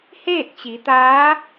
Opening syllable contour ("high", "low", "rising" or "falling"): falling